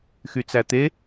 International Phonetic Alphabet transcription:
x y t͡s æ t̪ e

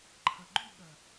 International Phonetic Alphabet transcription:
ǃʰ ɐ˨ ɡ͡ǃ y˦˨ ɠ ɐ˨

